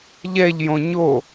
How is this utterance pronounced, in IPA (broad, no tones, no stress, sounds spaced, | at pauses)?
ʎ ɛ ʎ j õ ɲ o